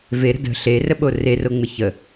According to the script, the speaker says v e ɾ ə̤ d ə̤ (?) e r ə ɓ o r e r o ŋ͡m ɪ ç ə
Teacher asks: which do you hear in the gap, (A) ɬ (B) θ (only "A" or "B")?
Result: A